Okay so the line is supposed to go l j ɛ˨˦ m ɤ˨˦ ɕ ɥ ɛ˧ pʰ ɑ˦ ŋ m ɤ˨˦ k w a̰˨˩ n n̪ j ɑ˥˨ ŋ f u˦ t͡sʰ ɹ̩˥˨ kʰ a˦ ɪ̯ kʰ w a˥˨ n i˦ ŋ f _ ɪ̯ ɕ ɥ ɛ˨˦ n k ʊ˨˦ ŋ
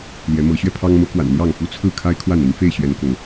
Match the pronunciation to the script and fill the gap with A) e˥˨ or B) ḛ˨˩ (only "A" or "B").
A